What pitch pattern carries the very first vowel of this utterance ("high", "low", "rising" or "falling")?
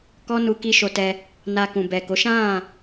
high